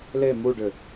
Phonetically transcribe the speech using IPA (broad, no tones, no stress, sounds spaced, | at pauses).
l e m u ɖ ʏ